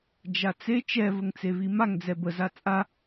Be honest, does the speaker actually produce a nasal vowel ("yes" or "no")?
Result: no